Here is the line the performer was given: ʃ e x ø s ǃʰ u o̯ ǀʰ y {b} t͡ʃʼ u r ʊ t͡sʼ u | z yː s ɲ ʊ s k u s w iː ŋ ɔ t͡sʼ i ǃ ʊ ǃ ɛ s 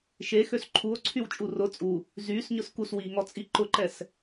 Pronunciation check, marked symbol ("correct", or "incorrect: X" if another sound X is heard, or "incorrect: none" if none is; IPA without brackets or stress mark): incorrect: w